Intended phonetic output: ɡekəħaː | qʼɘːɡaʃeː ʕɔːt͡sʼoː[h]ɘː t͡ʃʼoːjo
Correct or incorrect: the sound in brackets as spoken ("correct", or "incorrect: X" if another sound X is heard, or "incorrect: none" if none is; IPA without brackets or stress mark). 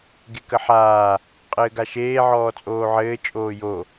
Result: incorrect: ʕ